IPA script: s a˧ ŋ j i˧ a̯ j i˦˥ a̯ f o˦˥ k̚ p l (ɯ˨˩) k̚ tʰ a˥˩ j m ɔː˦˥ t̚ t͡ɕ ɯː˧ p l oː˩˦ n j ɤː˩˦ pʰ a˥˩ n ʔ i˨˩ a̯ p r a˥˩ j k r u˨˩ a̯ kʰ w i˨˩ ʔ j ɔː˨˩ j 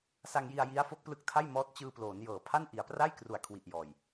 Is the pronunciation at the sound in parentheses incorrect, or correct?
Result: incorrect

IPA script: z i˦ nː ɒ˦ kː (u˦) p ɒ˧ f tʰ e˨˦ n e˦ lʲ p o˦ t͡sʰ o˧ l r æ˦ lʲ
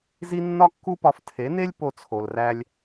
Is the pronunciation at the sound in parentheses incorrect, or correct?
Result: correct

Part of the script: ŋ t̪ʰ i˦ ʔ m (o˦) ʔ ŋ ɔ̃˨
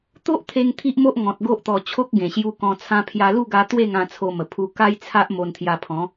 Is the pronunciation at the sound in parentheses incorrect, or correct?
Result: correct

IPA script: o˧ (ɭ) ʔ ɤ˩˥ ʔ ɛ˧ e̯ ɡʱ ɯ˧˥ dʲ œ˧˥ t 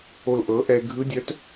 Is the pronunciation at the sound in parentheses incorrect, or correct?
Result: incorrect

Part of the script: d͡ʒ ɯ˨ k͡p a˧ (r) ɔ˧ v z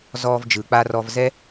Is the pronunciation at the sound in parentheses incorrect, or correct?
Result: correct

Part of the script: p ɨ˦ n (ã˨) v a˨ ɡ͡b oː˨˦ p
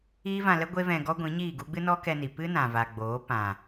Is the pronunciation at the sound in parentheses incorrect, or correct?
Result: correct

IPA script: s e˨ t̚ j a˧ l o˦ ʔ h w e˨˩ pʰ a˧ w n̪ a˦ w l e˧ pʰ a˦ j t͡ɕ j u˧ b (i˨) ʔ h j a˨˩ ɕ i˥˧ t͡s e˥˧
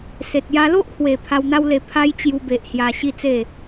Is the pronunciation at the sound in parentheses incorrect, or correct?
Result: incorrect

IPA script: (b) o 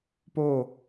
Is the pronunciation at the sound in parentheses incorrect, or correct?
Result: incorrect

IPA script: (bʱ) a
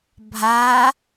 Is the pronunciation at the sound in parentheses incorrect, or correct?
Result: correct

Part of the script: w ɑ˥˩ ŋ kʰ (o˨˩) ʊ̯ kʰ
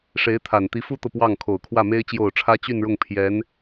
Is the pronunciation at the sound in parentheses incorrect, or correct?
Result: correct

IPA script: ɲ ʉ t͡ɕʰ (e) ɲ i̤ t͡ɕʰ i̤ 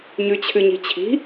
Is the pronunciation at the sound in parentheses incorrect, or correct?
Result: incorrect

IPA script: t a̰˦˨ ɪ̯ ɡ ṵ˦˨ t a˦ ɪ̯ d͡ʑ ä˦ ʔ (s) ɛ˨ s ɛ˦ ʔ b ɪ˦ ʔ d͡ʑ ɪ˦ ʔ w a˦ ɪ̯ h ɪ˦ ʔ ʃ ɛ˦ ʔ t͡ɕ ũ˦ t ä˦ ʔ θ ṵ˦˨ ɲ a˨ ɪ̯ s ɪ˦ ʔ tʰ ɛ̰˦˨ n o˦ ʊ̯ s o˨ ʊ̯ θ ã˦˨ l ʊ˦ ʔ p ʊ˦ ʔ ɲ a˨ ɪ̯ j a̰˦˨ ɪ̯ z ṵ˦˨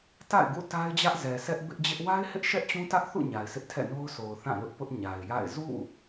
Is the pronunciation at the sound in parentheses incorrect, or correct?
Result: incorrect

